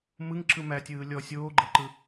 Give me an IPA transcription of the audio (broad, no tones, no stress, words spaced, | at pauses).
mɯŋ ǁɯmætʲɯː lʲɔ sʲoːɡ͡ǃɤǃɯ